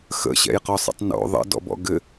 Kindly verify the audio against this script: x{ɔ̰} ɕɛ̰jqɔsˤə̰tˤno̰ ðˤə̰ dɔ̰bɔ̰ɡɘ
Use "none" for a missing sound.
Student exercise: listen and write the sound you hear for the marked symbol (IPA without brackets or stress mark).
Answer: ə̰